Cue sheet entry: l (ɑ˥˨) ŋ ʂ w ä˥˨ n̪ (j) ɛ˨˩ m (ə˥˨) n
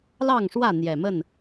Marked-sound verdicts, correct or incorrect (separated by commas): correct, correct, correct